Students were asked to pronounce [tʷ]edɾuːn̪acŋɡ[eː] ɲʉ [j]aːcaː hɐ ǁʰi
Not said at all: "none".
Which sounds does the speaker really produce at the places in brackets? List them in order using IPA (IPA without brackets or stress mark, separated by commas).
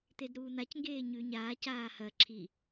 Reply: t̪, eː, ɲ